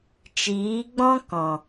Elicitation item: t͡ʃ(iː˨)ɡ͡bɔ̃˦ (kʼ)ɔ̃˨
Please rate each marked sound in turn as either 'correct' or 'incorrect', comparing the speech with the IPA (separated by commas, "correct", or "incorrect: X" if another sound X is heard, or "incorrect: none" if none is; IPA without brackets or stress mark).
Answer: incorrect: iː˨˦, incorrect: k